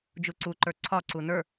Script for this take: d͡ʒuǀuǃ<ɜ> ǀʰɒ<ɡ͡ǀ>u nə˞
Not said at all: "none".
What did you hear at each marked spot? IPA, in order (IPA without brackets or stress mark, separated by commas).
ə˞, ǀ